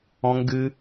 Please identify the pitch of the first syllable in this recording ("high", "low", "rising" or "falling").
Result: high